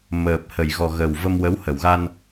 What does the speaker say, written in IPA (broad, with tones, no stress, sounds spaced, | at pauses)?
m əː˨˩ p̚ h ə˨˩˨ j ɣ ɔ˨˩ ɣ ə˨˩ w v ə˧ m w ə˧˥ w h ə˨˩˨ w ɣ a˧ n